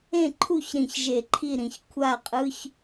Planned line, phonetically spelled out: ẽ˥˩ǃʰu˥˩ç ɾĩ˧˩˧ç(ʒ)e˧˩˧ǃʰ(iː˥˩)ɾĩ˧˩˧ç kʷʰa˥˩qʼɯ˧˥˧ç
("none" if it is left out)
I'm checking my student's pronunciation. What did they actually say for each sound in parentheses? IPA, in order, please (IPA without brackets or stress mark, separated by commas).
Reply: ʒ, i˥˩